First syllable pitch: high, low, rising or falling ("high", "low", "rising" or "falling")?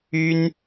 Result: high